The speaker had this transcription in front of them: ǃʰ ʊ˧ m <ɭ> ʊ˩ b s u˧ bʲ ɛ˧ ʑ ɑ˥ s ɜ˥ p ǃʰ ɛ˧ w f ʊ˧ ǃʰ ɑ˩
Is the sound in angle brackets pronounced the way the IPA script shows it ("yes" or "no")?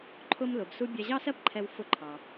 no